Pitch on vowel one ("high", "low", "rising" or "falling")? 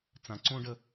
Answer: low